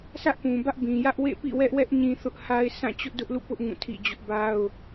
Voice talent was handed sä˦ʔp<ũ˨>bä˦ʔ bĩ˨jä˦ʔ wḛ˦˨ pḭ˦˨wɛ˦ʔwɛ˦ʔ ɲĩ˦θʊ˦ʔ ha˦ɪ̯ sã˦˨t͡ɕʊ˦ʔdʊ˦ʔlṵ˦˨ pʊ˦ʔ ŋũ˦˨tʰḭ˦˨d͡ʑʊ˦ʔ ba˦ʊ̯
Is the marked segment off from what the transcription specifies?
no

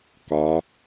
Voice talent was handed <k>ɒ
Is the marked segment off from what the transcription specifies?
no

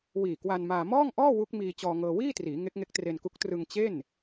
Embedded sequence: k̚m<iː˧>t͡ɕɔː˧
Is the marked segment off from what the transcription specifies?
no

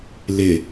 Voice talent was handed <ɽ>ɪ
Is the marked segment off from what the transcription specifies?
yes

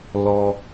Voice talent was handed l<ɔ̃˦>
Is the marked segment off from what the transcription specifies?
yes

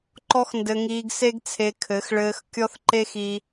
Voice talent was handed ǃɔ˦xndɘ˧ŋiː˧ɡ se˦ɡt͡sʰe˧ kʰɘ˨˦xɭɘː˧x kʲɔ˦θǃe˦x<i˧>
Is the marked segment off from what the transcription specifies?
no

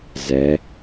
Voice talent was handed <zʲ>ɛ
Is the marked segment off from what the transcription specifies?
yes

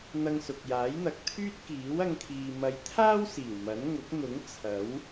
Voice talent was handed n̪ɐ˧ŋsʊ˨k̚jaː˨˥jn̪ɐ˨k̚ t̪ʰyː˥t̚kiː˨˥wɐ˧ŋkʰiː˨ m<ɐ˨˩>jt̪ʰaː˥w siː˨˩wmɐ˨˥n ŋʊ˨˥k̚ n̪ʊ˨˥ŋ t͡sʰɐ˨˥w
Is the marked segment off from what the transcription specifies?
yes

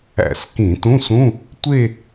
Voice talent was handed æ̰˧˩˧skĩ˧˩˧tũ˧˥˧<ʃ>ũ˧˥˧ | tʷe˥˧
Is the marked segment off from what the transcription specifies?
yes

